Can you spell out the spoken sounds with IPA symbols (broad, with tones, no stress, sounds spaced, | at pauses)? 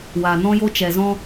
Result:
w aː˨ n ɔ̃˦ j o˦ t͡ʃ ɛ˨ z ɔ̃˧